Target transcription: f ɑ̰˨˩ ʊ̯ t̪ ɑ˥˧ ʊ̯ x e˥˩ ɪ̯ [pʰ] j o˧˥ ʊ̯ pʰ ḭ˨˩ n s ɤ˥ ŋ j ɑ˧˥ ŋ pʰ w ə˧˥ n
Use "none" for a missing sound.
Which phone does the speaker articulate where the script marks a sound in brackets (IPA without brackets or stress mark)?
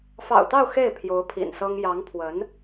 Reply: pʰ